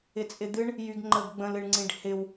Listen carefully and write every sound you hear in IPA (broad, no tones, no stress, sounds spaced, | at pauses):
ɪ t͡sʼ ɪ d̪ ɨ ɳ | j y ɡ ŋ͡ǃ ə ɡ ɡ͡b ə̃ l ɨ ɳ ŋ͡ǀ ĩ ɖ h ɪ w